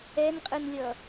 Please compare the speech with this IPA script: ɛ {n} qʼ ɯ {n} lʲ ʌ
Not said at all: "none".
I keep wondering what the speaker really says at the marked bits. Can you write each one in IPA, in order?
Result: n, n

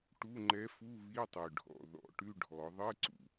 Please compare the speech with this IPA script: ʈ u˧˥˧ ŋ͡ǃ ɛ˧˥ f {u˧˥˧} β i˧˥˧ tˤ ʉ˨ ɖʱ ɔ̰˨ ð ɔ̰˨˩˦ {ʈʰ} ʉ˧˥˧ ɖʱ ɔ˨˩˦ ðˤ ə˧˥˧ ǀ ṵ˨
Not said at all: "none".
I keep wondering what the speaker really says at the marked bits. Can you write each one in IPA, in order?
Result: u˧˥˧, ʈ

